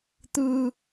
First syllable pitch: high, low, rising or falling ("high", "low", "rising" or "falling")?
high